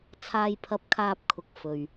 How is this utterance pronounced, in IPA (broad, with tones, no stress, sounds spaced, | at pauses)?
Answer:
t͡sʰ aː˧ j pʰ ɐ˧ p̚ kʰ aː˧ p̚ kʰ ʊ˨ k̚ f ɵ˨ ɥ